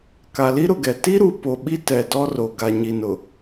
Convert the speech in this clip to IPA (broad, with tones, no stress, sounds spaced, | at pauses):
k a˨ l i˦ ɾ ʊ˨ ɡ ɛ˨ t i˦ ɾ u˨ p o˨ ɓ i˦ t ɛ˨ d ɔ˦ r o˨ ɡ a˨ ɲ i˨ n ʊ˨